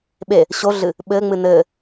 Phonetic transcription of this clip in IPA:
ɓe | ɕoɮɨ | ɓɘːŋ͡mɨ nɘ

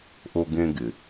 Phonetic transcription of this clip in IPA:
ʔo˧ɡẽ˧ɡɪ˨

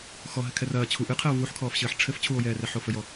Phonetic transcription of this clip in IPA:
xɔɦɘ kʰɛrɐː t͡ɕʰu ʔɨqʰɛo̯ vuħkʰɔːfɕɘːħ ʈ͡ʂʰɘf t͡ɕʰuo̯jɛːrɛ ħofɘjɔ

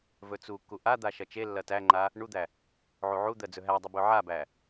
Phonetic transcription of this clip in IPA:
vɵt͡sukːu ʔad̪a ʃɐt͡ʃelːɐ tæŋ͡ǃa | ɳud̪æ | ʕuʕud̪ɜ d͡zɵɦædˤu bɵʕabæ

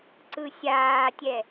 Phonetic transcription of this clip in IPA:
ǀɯsʲaːtʲɛ

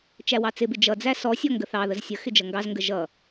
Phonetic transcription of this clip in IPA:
t͡ʃæwɑt͡sɪbɪ d͡ʒʌd͡zæ sɔsʲɔ ŋɡəθɑðəz sʲə xɪd͡ʒʌŋɡɑzŋɡə ʒʌ

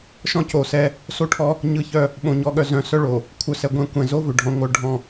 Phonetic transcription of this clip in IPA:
ʃɔ̃˦co˨sɛ˦ | so˦ʈʰɔ˦ | ɲɯ˦çœ˦ | ɓõ˨ɲɔ˨ɠœ˨ zœ̃˨sœ˦ ɭo˨ | kʷʰœ˨sɛ˨ɡʷɛ̃˨ kʷɛ̃˨zo˦vʏ˨ ɖʱɔ̃˨ŋʷœ˦˨ ɖʱɔ̃˦˨

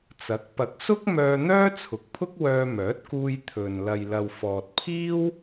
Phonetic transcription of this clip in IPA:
t͡sɐ˨˥k̚ pɐ˨˥k̚ sʊ˥k̚ mœː˧ n̪œː˥t͡sʰʊ˨˥k̚pʰʊ˥k̚ wœː˧mœː˨˥t̚kuː˧j t̪ʰɵ˨n lɐ˨jlɐ˨w fɔː˨t̚pʰiː˥w

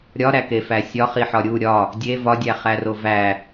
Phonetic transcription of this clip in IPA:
ɾʲɒɾækefæ sʲɒχi ħɒɾʲu ɾʲɒ | dʲe vɒdʲæχæro væ

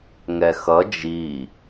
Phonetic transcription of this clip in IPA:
ŋɛxʌ d͡ʒi

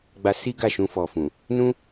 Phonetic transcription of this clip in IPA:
ɡ͡ba˧si˦ ɡa˦˨ʃũ˧fɔ˨ fũ˨ | nũ˦

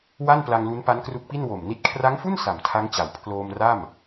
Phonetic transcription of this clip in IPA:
wa˥˩npla˧ŋlu˦˥n pa˦˥nkru˦˥k̚pi˥˩n wo˨˩mni˦˥t̚ kʰra˦˥ŋfu˥˩n sa˨˩mtʰa˦˥ŋt͡ɕa˩˦w pʰloː˧m ra˥˩m

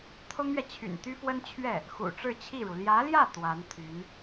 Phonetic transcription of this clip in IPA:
t̪ʰʊ˥ŋɥɛ˨t͡ɕʰy̰˨˩n t̪y˥fwə˥nt͡ɕʰɥɛ˥˩ | xṵ˨˩ʈ͡ʂɻ̩˥˧t͡ɕʰi˥˩ɻu˩ ljä˧˥ljä˥˩ t̪wa˧˥nt̪ʰy˧˥n

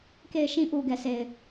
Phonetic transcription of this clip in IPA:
ke˨ɪ̯ʃĩ˨ ʔu˨ɡɛ˨ sʰe˨ɪ̯

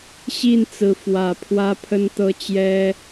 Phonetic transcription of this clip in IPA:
ɕi˥˨nt͡sɹ̩˨˦ fwä˨˩ pʰwä˦pʰə˦nt̪ɤ˦ t͡ɕjɛ˦

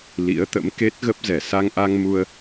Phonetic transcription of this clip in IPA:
lḭ˧˥ə̯t̪ə̰˧˥mke˦˥t̚ ɣə˦˥p̚zɛ˧˩ sa˧ŋʔa˧ŋ mu˧ə̯

